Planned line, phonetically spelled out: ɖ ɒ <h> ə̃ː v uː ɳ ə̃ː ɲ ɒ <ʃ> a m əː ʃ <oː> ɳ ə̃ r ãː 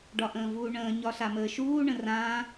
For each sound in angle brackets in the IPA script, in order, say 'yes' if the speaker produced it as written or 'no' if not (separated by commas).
no, no, no